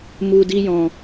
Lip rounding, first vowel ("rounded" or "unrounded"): rounded